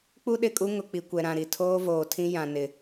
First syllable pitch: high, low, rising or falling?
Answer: high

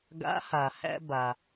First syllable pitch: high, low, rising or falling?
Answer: rising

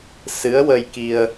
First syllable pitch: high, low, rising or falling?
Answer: rising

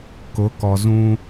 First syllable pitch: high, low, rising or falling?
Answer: rising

